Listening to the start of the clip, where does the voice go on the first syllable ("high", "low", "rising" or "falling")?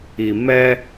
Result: low